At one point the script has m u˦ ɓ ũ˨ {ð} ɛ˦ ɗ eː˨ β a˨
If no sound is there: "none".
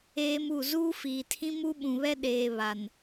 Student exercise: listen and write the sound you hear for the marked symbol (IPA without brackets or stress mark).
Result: β